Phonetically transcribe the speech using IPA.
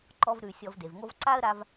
ǃ ɔ˧ v ɾ ʉ˨ sʲ ɔ˧ v d e˨ v ŋ o˦ v ǀ a˦ ə̯ ɾ a˧ v

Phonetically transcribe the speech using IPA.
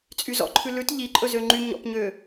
t͡sʼ y z ɔ̰ ǃʰ ʉ l ʉ t ʎ i ǃʼ ɵ z ø ŋ͡ǃ y ɲ ɔ̰ p ɲ ø

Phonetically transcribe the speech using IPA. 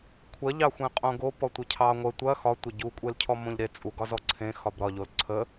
kʷʰ ɐ ʎ ɑ xʷ ẽ qʼ õ ɡ o p ɔ tʷ ə cʰ ɑ ŋʷ ə tʷ ɐ x ɒ tʷ ɐ ɟ u kʷʼ e l cʰ ɔ m õ ʎ ɾ e t͡sʼ u ɡ ɒ z ɔ ǀʰ ẽ x ɒ b ɾ ɒ ʎ o l ǀʰ ə

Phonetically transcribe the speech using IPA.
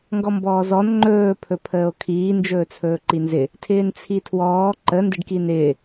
ŋ ɡ ɔ m b ɔː z ɔ n ŋ͡ǃ ɵː pʰ ɵ pʰ əː o̯ kʰ iː n d͡ʒ ɵː t͡sʰ ɵː ǃ i n z ɪ | tʰ ɪː n t͡sʰ i tʰ w ɔː ǃ ə n d ɪ ɖ k i n ɪː

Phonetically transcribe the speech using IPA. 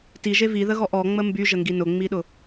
t i ʒ e v i ð ə ɣ ɔ ʔ ɔ ŋ͡m ə m b y ʒ ə ŋ ɡ i n ʊ ŋ͡m i ɗ ʊ

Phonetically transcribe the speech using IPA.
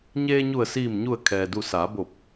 ɲ eː˧ ɲ u˧˩ ə̯ s iː˧˩ m ɲ u˧˩ ə̯ kʰ ɛː˩ d u˧˩ s aː˩˧ b o˧˩ p̚

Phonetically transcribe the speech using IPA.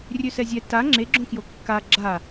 rʲ ø s ɛ zʲ ɛ t a ŋ͡ǁ e ɡ͡ǁ õ k j o kː a ɡ͡ǁ a

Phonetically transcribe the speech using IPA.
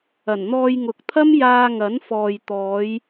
ɐ˨˩ n n̪ ɔː˧ j ŋ ʊ˨ k̚ t̪ʰ ɐ˥ m j aː˧ ŋ ɐ˨˥ n f ɔː˨ j t̪ ɔː˨˧ j

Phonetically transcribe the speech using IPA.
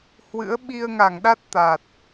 h w ɨ̰˧˥ ə̯ ɓ i˧ ə̯ ŋ a˧˩ ŋ ɗ a˦˥ t̚ t̪ a˨˩ t̚

